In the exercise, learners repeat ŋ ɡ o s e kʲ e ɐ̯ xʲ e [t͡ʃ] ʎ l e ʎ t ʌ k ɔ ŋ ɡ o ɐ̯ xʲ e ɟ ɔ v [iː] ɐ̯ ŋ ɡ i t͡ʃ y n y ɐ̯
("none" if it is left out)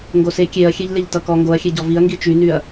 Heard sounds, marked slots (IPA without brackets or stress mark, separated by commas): none, i